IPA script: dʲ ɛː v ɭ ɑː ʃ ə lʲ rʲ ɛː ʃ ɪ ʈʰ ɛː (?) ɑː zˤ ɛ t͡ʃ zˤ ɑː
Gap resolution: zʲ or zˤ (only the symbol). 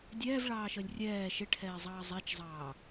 zˤ